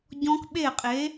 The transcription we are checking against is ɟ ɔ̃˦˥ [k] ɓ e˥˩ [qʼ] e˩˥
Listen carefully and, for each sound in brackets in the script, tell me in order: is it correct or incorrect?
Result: correct, correct

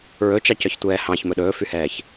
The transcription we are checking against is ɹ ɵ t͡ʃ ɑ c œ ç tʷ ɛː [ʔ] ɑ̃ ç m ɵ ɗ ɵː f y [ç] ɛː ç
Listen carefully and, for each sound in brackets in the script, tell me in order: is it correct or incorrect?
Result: incorrect: h, incorrect: h

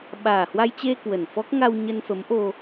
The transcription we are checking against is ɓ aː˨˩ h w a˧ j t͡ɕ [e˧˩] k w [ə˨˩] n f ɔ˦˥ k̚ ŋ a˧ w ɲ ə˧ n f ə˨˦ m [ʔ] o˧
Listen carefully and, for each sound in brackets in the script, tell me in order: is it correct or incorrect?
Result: incorrect: e˧, correct, correct

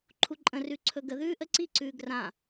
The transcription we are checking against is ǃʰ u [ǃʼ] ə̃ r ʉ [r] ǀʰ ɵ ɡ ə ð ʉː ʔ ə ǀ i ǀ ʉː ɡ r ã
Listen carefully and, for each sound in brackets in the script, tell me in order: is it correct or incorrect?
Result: correct, incorrect: none

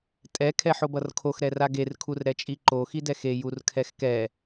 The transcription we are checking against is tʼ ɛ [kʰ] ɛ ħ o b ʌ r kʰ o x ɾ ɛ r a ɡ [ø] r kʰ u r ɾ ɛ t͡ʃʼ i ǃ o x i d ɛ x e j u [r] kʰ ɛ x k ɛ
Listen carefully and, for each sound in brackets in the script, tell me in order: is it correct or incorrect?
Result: correct, incorrect: e, correct

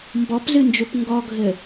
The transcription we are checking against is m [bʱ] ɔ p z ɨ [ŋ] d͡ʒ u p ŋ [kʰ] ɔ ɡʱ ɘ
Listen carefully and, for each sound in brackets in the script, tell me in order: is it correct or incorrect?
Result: incorrect: b, incorrect: n, incorrect: ɡ

